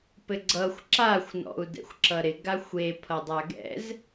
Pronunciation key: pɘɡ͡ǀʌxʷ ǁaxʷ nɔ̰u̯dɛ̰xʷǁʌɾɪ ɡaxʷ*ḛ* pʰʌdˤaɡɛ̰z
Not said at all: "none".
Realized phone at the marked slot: e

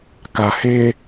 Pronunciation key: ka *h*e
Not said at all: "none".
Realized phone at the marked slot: h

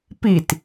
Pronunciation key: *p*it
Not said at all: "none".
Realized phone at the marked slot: p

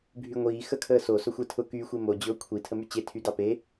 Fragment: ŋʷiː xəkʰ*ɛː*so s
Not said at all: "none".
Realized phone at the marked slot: əː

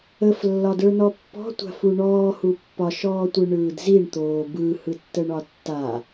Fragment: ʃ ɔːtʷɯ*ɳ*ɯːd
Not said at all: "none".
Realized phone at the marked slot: ɳ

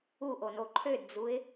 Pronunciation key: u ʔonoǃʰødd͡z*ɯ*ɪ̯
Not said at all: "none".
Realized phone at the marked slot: u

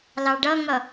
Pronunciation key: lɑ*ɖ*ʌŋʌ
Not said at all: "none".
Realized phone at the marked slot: ɖ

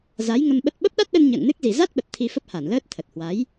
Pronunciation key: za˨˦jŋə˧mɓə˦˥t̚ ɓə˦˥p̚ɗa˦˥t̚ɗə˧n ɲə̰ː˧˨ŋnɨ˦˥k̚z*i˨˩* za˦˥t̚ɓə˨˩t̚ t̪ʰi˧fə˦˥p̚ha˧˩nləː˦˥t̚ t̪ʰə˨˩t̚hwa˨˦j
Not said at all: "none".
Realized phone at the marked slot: i˨˩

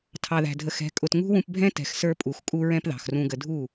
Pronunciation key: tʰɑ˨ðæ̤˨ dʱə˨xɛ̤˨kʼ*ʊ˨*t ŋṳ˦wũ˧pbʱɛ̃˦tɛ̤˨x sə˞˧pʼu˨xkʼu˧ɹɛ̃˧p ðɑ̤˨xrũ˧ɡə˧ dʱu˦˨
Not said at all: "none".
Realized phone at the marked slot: ʊ˨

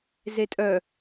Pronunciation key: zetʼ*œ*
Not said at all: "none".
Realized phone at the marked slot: œ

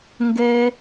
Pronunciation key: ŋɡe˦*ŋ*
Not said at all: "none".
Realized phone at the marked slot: none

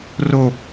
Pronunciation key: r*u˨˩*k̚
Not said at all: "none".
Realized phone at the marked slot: o˨˩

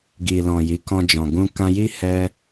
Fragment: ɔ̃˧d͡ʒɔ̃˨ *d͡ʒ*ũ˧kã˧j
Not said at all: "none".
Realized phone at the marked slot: ɡ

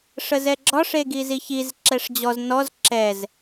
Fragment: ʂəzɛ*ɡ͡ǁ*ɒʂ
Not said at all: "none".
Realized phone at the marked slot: ɡ͡ǁ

